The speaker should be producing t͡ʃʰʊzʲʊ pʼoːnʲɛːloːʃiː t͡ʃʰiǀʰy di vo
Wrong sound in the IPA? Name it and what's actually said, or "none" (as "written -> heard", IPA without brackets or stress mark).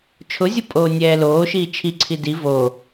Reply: y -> i